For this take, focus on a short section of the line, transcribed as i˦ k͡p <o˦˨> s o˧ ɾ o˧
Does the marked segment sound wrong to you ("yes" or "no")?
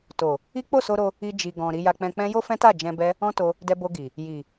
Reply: no